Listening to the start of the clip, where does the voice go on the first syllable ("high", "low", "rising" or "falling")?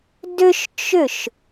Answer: high